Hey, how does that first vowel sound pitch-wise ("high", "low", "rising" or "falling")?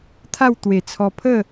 falling